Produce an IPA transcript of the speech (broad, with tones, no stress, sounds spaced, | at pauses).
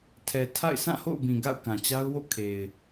tʰ ɛ˨ tʰ a̰˦˨ ɪ̯ s ã˦˨ h o̰˦˨ ʊ̯ b ĩ˨ ɡ a̰˦˨ ʊ̯ k ã˨ t͡ɕ a˦ ʊ̯ w o̰˦˨ kʰ e˨ ɪ̯